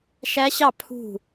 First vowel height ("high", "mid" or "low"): low